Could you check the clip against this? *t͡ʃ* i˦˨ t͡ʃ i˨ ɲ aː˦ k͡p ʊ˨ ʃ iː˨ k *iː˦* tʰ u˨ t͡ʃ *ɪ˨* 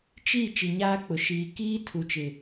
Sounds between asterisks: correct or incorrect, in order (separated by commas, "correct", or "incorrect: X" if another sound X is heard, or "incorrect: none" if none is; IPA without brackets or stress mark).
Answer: correct, correct, correct